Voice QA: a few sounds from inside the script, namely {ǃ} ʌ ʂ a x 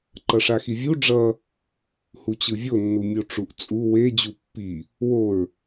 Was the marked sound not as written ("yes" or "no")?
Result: no